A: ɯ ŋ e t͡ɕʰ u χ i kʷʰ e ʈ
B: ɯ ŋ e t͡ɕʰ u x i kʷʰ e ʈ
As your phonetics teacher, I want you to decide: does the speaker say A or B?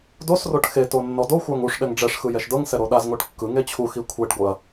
B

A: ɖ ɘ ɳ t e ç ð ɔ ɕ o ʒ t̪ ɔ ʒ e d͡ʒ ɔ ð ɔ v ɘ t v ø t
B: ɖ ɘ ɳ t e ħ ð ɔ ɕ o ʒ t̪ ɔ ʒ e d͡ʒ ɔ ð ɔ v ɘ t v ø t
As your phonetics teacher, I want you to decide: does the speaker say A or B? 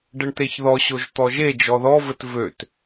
A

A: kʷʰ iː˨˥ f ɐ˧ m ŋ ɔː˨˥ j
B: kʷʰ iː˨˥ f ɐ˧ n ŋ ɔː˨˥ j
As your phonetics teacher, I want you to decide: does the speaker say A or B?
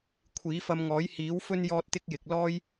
A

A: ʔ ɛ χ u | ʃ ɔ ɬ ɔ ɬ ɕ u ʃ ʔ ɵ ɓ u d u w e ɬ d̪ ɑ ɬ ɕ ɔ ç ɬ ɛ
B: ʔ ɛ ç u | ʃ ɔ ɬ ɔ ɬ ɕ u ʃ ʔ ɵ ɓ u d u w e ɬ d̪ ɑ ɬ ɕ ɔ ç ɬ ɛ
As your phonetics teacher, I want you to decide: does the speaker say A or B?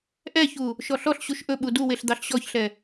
B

